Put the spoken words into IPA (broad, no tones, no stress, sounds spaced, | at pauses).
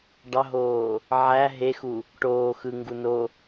ɖ ɑ ɦ oː | ʕ æ ɦ e x u | ʈ oː x ɯ ŋ ɡ u n o